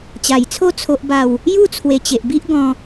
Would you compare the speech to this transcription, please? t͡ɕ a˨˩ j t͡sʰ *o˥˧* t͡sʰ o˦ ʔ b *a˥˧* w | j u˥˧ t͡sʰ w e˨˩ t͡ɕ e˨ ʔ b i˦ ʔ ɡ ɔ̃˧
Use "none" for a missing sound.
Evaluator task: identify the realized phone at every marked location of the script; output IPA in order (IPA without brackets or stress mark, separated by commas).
o˥˧, a˥˧